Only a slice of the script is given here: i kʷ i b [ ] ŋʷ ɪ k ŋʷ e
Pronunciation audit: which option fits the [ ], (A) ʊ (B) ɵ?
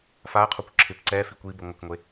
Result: A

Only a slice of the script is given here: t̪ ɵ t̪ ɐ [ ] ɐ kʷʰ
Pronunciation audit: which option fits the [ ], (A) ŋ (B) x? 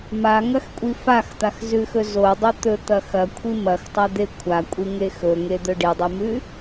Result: B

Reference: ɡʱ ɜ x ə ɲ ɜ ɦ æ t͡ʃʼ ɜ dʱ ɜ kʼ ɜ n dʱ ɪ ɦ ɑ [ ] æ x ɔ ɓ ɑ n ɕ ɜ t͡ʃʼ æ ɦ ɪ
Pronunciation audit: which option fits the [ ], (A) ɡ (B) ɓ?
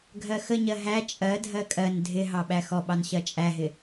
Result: B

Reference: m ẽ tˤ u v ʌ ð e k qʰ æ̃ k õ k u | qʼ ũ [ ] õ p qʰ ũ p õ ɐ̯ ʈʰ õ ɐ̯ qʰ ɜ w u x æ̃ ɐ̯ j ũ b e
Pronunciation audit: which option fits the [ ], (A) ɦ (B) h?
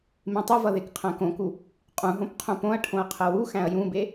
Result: A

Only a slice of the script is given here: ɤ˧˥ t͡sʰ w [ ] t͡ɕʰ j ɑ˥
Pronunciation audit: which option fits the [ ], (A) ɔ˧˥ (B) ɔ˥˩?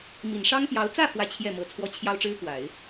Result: B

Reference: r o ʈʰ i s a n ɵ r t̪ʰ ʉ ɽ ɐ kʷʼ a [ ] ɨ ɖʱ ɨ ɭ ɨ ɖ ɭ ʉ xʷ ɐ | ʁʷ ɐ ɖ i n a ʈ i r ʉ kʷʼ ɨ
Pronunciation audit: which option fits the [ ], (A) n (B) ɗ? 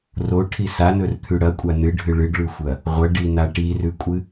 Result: A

